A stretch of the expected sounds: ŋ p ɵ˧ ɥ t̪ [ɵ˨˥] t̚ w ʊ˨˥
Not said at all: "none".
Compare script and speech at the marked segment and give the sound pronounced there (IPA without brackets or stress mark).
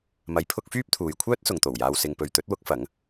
ɵ˨˥